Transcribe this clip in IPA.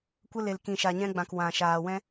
kʷ ə˧ l e˨ l k ĩ˨ ʃ a˨ ɲ ɛ̃˧ ɡ͡b ã˨ k w ã˨ ʃ aː˨ w ɛ̃˧

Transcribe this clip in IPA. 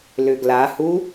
l ʏ ɡ l a h u

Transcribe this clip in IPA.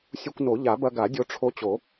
sʲ u˧ kʷ n o˨˩˦ ʎ a˨˩˦ b ɐ˧ ɡ a˨˩˦ dʲ o˧ ʈ͡ʂʰ o˧ t͡ɕ o˨˩˦

